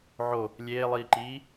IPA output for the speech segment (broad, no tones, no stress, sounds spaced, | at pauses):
ʕ o | lʲ eː lˠ iː ǃ iː